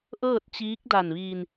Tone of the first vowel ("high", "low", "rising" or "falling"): falling